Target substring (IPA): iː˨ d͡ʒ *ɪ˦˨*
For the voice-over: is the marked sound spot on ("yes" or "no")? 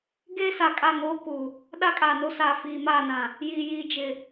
no